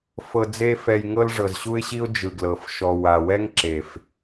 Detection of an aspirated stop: absent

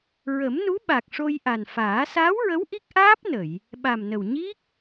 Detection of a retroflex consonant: present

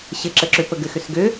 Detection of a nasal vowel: absent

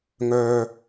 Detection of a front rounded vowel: present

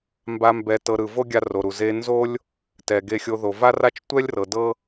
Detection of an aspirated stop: absent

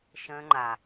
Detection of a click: present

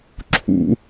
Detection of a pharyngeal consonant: absent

